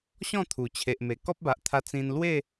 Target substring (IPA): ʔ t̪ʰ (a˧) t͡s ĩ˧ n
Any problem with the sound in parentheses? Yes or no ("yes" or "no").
no